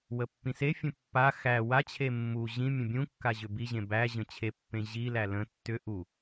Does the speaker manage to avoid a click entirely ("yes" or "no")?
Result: yes